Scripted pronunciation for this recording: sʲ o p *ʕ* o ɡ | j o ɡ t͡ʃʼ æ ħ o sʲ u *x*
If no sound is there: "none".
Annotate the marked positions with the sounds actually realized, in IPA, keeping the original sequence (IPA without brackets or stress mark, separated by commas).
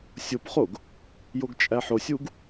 χ, ɡ